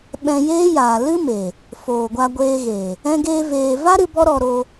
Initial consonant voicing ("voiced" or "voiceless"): voiced